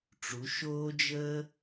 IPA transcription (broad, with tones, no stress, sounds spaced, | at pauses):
ʈ͡ʂ u˩˧ ʃ oː˦ d͡ʒ əː˦